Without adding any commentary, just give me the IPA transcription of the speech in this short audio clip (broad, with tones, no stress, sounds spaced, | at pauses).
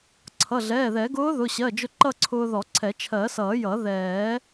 ǀʰ ʌ˩˧˩ ɮ ɛː˩˧˩ ð ɛ˨˩˦ ɡ ʊː˧˥ ð ʊ˩˧˩ ɕ ɜ˩˧˩ d͡ʒ ʊ˧ ǃ ʌ˥˧ ǀʰ ʊː˧ ð ɔ˨˩˦ ǀʰ ɛ˨˩˦ t͡ʃʰ ɜ˨˩˦ s ʌː˨˩˦ j ʌ˨˩˦ ð ɛː˨˩˦